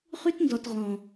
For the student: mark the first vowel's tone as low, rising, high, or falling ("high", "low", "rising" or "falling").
high